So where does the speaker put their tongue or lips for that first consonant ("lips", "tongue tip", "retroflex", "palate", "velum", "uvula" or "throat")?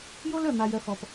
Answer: palate